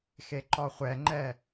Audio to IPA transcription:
x e ǃ ɔ χʷ ɛ ŋ͡ǃ ɛ

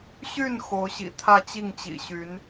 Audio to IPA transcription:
ɕ y˥˩ n x o˧˥ ʊ̯ ɕ ḭ˨˩ t̪ʰ ä˥˧ t͡ɕ i˥˩ ŋ t͡ɕ ḭ˨˩ ɕ y˧˥ n

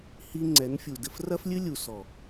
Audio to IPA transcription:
h i˦ ŋ͡ǀ ɛ˨˦ n fʲ u˨ d ɘ˧ f r ɐ˦ f lʲ ɨ˦ lʲ u˨ s ɔ˨

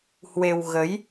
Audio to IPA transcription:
h w e˧ w ɣ ə˨˦ j

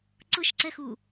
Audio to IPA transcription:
ǀ ʊ ʃ ǀ ɛ x u

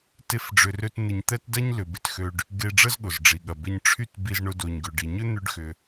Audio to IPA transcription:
t e˥ f ɖ͡ʐ ʏ˧ r ø˥ t n̪ ɪ˧ ɲ t̪ ɛ˥ t d ɐ˥ ɲ l ʏ˩ b ɪ˧ t x ø˧ ɖ | ɡ e˧ ɖ͡ʐ ə˥ z ɠ ʊ˩ z ɖ͡ʐ i˩ ɠ ɐ˩ b ɪ˧ ɲ ʈ͡ʂʰ y˥ t b i˧ z ɳ ʊ˧ d o˩ ɲ ɡ ʏ˩ ɖ i˩ ɲ ø˥ n̪ ʏ˧ ɖ x ʏ˩

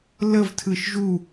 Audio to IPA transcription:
l ə v tʰ ɯ ʃ ʒ u

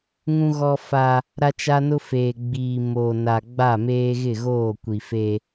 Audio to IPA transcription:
ŋ ũ˦ ɣ ɔ˦ f a˦ | ɾ a˦ t͡ʃ a˦ n ʊ˦ f eː˨ ɡ͡b iː˨ m oː˨ n a˨ ɡ͡b a˦˨ m eː˦ ɣ ɪ˦˨ ɣ oː˦˨ kʷ i˨ f e˦

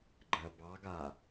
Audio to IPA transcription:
ɡ͡ǃ ɜ b ɑ ɡ a

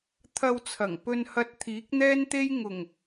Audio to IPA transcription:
t̪ʰ ɐ˧ w t͡sʰ ɐ˨˩ ŋ p ɵ˧ n h ɐ˧ t̚ t̪ʰ iː˨˥ k̚ n̪ ɛː˥ n t̪ e˥ j ŋ ʊ˨˩ ŋ

